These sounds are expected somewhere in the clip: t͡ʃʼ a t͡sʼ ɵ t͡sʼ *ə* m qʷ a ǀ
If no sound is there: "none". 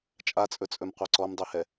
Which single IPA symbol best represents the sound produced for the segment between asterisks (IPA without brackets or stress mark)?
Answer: ɵ